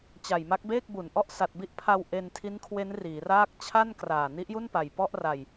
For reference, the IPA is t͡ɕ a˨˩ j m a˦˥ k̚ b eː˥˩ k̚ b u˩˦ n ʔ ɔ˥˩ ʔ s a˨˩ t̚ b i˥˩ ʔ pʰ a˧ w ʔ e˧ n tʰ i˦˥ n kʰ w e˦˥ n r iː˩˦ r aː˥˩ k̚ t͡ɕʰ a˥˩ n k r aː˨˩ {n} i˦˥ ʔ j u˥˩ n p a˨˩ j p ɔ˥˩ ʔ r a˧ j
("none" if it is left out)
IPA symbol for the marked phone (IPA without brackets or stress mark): n